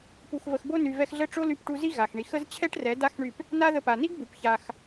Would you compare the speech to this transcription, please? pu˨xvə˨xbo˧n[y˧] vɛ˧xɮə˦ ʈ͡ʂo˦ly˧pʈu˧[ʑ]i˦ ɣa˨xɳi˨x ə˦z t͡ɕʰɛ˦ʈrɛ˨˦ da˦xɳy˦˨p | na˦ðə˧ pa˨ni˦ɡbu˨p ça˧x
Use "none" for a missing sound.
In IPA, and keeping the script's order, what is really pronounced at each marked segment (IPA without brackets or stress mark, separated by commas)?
y˨, z